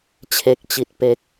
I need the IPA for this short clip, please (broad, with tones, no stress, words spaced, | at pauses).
t͡ɕʰe˨˩k̚ t͡ɕi˨˩t̚pe˦˥k̚